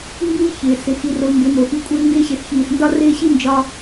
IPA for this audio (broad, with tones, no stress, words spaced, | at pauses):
mbiː˦ çɪː˨sɪ˨ xi˧ro˧ ŋɡɪ˨˦mo˨xi˧ kʷʼɪː˧ŋɡɪː˧ɕɪ˨sçiː˨s ndɒ˦rɪː˦ ɕi˦nd͡ʒɒ˧